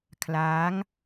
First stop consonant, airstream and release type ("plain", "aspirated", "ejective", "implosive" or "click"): aspirated